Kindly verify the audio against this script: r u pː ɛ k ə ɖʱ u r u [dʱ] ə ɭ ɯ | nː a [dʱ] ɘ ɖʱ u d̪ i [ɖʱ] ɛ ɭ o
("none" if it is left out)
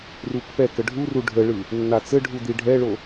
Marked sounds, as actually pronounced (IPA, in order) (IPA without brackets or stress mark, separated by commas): ɖʱ, t͡s, ɖʱ